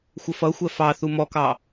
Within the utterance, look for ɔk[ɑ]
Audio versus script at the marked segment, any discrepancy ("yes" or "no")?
no